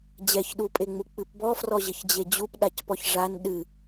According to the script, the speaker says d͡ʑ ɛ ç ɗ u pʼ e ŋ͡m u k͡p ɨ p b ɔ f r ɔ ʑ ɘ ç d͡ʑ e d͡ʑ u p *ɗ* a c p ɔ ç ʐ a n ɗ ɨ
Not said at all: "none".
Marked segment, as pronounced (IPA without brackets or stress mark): ɗ